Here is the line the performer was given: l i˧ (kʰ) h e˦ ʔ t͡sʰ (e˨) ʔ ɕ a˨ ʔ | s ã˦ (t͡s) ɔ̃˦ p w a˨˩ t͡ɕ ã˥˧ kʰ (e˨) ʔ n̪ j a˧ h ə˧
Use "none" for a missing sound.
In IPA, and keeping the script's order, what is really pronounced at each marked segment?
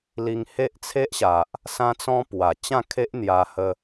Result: ŋ, e˦, t͡s, e˦

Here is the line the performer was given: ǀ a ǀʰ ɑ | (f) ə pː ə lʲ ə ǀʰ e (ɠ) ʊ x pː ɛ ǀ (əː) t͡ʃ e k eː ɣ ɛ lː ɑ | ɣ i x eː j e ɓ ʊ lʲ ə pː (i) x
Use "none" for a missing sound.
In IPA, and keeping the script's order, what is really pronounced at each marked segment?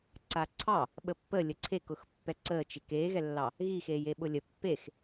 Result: ɓ, k, əː, e

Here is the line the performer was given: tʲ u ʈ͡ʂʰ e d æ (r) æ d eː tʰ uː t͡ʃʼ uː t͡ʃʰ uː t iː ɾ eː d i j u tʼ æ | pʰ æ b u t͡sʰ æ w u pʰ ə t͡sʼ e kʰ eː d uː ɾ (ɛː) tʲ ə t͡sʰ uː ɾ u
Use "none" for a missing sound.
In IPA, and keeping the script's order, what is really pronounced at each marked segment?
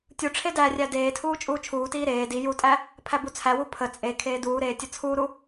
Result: rʲ, eː

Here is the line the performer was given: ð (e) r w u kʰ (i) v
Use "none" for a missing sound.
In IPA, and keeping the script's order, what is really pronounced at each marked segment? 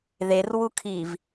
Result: e, i

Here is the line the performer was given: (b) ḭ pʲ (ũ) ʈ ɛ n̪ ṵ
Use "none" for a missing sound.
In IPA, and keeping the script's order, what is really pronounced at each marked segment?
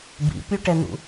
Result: b, u

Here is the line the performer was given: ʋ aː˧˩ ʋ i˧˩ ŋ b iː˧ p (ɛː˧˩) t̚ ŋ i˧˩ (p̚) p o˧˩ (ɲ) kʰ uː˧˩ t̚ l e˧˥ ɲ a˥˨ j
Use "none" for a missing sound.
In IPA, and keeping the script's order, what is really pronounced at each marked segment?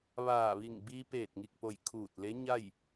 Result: eː˧˩, k̚, j

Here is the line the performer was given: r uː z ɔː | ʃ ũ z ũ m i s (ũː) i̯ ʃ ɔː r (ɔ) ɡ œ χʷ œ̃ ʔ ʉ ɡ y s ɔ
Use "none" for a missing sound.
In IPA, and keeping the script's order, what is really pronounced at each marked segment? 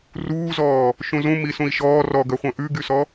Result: ũ, ɔ

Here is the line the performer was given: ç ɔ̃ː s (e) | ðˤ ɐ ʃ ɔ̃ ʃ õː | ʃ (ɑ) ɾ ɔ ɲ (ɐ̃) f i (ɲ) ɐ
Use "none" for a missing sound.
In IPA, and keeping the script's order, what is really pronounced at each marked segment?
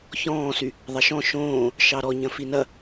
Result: y, ɑ, ɐ̃, n

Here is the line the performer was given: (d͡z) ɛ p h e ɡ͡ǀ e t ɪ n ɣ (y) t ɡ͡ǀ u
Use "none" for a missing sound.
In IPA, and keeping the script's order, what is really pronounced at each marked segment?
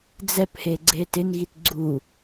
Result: d͡z, i

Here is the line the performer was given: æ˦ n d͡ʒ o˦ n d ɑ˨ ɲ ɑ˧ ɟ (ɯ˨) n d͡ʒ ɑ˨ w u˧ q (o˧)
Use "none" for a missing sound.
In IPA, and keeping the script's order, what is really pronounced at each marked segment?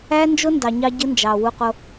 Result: ɯ˦, o˧

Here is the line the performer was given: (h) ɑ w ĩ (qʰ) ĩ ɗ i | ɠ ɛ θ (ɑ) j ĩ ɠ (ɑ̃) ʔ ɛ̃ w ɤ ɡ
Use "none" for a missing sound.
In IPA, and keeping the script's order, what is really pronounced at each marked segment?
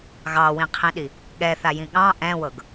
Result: ɣ, qʰ, a, ɑ̃

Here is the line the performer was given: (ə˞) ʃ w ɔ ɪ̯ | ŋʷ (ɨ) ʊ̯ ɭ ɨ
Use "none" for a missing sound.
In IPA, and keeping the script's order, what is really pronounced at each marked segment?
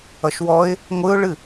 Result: ʌ, ɨ

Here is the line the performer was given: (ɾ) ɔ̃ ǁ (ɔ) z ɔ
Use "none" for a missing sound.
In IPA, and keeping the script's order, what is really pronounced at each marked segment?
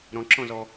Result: ɾ, ɔ̃

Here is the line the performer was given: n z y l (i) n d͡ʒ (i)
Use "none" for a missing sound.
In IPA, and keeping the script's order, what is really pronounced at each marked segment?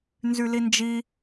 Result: i, i

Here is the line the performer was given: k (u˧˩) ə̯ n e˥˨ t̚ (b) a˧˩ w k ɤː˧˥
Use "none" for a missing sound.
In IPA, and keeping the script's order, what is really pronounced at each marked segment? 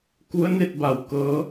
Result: u˧˥, b

